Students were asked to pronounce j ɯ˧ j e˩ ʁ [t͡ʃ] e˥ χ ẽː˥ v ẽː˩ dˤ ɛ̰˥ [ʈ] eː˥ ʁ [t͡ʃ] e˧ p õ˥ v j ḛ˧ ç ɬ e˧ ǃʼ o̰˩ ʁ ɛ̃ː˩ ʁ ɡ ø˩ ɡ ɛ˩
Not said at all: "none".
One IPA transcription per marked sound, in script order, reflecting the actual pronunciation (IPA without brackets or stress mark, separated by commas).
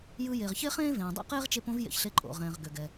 ç, q, t͡ʃ